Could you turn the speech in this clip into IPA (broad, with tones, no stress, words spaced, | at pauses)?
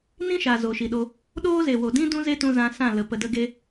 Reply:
nĩ˦ʃa˨ zo˨ʃi˨ɗo˧ | ɗoː˦ze˨wo˨dĩ˦ dũ˦ze˦tũ˧ zã˧sã˦˨lə˨ pə˨də˧ɡe˧